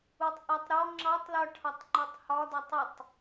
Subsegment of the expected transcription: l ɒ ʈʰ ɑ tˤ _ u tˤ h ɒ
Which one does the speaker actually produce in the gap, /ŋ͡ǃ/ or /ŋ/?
ŋ͡ǃ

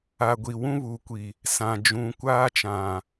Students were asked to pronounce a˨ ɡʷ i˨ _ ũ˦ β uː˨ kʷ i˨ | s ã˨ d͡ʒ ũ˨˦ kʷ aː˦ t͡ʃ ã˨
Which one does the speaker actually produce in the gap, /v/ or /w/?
w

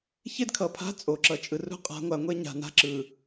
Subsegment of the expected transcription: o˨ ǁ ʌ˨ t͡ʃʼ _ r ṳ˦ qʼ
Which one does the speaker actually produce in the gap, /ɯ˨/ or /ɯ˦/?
ɯ˨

